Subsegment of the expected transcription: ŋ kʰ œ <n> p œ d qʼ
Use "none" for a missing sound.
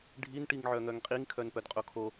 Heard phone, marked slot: n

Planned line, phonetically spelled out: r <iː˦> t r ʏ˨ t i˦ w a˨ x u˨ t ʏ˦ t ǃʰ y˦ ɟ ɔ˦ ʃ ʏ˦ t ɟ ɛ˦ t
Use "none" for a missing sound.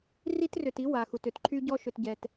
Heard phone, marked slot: i˦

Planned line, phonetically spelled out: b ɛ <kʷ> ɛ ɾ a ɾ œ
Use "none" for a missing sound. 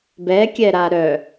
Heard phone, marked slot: kʲ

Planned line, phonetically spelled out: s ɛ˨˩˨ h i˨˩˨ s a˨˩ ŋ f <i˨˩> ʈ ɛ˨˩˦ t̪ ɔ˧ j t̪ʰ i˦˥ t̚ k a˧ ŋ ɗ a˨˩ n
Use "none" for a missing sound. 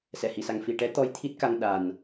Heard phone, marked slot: i˨˩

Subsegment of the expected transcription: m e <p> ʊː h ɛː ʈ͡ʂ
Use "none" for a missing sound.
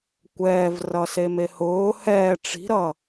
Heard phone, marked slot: h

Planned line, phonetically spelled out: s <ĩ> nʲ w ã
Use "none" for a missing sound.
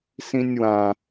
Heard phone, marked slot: ĩ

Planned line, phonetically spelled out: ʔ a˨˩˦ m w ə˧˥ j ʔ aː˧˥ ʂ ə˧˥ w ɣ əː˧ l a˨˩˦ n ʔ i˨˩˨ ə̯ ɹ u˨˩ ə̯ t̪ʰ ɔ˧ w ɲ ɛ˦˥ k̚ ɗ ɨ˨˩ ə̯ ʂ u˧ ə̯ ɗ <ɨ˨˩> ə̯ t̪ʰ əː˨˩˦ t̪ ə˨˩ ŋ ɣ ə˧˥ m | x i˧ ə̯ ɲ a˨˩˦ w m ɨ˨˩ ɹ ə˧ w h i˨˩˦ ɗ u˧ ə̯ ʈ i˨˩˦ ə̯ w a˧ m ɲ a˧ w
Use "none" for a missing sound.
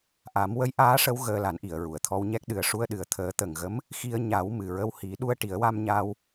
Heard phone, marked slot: ɨ˨˩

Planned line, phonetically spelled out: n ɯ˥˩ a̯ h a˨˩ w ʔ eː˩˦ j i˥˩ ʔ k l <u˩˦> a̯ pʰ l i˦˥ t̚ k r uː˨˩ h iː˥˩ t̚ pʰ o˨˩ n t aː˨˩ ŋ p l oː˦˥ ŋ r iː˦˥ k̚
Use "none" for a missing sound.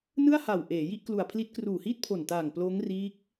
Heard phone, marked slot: u˨˩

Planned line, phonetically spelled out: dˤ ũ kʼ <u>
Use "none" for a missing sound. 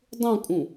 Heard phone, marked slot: ũ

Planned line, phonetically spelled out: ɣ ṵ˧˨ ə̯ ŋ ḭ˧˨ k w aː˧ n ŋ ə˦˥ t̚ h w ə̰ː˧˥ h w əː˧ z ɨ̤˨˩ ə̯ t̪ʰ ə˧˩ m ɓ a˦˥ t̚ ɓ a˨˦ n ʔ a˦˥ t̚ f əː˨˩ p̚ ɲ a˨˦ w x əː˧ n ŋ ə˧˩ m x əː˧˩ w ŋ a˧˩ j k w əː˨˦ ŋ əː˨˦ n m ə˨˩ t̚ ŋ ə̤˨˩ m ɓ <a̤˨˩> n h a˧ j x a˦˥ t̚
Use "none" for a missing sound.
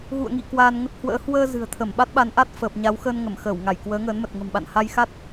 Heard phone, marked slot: a̰˧˨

